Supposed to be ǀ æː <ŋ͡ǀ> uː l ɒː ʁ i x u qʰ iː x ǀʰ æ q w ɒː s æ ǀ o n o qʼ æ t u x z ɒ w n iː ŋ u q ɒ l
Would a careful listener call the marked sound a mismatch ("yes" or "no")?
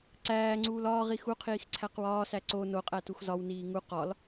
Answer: no